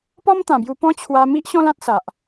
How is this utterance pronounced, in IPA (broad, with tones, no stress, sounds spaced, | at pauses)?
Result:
p ɔ˦ m t̪ ã˨˩ b j u˧ p ɔ̃˦ t͡ɕʰ w a˧ m i˦ ʔ ɕ ɔ̃˦ l ã˦ t̚ s a˨ ʔ